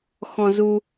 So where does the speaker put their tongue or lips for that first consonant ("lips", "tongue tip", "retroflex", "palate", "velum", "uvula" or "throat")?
velum